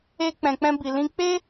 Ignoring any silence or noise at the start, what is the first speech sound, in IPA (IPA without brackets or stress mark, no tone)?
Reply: e